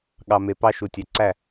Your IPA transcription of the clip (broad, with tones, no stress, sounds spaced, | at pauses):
ɠ ɑ˨ m e˨ p ɑ˦ ʃ u˨ tʲ æ˨ ǀ æ˦˨